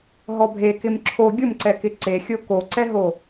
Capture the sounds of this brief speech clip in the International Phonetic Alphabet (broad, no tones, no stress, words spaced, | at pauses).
ɦɔbʱekɪm ǁʰo ɡʲʊmǀɛkɪ ǀexʲo koǀɛɦo